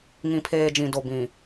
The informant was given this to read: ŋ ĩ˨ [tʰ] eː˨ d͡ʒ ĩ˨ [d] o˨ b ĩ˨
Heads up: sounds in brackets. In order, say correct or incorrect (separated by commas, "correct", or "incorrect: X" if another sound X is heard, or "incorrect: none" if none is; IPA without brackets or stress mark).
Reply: incorrect: pʰ, correct